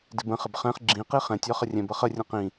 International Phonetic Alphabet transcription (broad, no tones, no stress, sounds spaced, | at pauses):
d ɪ b ə̃ χ ɪ b χ ɛ̃ χ ɡ͡ǁ ĩ q i χ ɛ̃ tʲ ɒ χ ə rʲ ɛ̃ b ʌ χ ə rʲ ə̃ q ĩ